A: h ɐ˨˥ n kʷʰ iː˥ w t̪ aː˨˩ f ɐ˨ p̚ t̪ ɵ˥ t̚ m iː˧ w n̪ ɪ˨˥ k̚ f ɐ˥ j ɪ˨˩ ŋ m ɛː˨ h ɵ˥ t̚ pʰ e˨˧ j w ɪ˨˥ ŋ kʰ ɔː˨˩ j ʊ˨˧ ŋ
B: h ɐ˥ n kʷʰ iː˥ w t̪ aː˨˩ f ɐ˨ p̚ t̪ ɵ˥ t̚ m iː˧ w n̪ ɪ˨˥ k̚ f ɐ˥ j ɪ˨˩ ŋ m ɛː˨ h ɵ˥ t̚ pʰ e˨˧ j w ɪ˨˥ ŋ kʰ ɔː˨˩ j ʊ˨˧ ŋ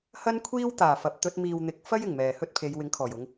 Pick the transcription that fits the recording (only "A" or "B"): B